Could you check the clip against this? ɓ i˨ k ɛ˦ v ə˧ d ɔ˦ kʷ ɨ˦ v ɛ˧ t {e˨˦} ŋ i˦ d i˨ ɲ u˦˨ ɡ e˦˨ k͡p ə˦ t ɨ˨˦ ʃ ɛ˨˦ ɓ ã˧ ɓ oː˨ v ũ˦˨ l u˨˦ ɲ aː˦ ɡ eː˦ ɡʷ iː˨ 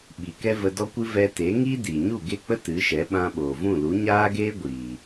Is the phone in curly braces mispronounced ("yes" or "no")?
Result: no